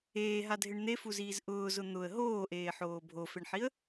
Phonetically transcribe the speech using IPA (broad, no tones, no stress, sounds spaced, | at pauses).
eː ɦ a dʱ ɪ ɳ n̪ e f u z iː z ʔ ʊː z ʊ n̪ ʊ ə̯ ɦ oː ʔ eː ħ oː bʱ o f e ɳ ħ i ə̯